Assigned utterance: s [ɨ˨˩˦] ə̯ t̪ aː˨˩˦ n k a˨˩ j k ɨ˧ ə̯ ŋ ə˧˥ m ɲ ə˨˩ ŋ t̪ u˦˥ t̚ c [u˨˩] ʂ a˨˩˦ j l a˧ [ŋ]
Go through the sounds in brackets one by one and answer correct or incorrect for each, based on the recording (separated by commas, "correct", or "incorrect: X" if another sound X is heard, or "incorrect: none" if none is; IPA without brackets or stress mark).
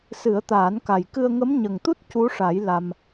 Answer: correct, incorrect: u˧˥, incorrect: m